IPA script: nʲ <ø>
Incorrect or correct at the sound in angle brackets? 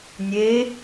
incorrect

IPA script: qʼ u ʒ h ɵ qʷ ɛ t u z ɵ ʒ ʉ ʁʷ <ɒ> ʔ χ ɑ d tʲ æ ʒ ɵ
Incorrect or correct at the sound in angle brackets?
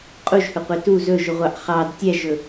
incorrect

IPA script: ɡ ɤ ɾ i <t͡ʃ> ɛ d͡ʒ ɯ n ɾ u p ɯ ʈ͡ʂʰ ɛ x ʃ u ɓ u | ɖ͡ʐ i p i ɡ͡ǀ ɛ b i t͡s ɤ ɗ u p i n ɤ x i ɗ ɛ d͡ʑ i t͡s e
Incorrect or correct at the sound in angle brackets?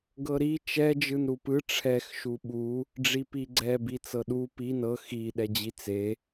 correct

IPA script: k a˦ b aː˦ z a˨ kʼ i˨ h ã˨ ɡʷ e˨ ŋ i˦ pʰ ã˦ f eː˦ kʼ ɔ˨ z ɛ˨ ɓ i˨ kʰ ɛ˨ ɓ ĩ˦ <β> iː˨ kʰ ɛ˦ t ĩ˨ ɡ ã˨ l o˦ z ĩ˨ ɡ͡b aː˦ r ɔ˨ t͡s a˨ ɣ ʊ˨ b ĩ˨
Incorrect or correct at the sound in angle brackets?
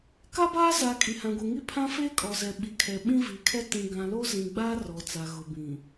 incorrect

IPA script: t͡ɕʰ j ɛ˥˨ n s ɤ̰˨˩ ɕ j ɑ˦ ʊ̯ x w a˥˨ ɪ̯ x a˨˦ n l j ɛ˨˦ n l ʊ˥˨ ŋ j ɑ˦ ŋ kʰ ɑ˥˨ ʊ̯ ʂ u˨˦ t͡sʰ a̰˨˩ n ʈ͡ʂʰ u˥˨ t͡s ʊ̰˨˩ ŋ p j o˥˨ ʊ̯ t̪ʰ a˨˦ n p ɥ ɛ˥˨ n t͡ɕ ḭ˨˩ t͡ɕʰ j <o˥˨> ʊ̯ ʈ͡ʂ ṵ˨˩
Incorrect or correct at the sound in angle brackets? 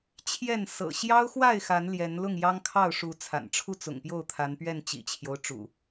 incorrect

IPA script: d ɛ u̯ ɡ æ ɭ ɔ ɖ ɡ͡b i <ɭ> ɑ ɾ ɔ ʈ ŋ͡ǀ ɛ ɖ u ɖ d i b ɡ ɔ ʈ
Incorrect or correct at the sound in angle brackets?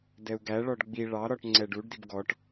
correct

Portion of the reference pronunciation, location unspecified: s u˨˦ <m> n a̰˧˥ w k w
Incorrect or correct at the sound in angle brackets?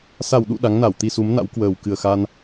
correct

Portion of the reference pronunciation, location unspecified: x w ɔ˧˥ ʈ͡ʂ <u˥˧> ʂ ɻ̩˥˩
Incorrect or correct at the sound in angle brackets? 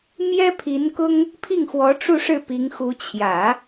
correct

